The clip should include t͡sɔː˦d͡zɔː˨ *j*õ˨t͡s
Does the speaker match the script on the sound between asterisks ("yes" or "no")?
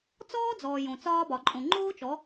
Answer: yes